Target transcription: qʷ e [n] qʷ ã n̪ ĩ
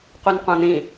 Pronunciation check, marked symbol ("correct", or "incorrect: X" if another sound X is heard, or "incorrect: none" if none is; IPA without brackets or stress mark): correct